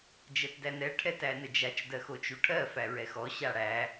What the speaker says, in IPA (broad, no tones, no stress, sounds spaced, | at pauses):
d͡ʒ ɜ t d æ n ɛ ʈʰ ɛ t æ n ə d͡ʒ a t͡ʃ d ɜ x o t͡ʃ u ʈʰ ɜ f æ ɹ ɛ x ɔ ɕ a ɽ æ